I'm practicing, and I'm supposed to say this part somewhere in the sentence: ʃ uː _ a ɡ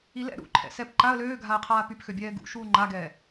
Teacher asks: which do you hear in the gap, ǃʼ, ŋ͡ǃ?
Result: ŋ͡ǃ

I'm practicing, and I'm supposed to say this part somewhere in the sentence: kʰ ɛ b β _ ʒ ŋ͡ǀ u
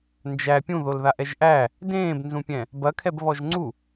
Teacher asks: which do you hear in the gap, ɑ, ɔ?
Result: ɔ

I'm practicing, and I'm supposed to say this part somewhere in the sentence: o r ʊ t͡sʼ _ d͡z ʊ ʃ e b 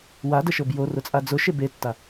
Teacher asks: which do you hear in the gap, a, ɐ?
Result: a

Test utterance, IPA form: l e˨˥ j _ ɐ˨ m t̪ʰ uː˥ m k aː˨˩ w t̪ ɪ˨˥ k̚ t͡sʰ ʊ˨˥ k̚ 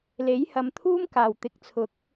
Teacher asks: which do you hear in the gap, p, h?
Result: h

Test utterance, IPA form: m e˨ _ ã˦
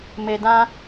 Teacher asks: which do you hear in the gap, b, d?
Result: d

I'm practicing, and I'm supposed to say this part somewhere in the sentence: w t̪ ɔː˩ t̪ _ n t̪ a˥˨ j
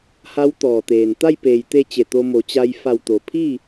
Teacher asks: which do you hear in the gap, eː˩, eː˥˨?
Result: eː˩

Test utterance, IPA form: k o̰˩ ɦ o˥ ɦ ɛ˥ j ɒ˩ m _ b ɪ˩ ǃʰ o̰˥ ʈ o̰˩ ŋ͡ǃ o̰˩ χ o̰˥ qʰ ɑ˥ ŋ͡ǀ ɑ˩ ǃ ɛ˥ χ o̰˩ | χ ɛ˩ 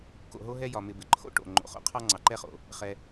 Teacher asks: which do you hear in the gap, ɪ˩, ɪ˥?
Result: ɪ˩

